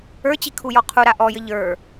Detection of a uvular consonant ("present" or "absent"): present